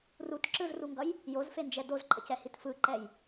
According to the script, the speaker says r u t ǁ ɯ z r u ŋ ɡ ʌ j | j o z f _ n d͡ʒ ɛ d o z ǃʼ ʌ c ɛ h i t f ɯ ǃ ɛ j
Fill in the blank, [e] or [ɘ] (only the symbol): e